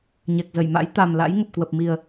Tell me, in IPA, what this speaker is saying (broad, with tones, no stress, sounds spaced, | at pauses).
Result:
ɲ ɛ˨˩ k̚ z ə˧˩ j m a̰˧˥ j t̪ a˨˩ m l a̰˧˥ j ŋ ə˨˩ p̚ k w ə˨˩ p̚ m i˨˩ ə̯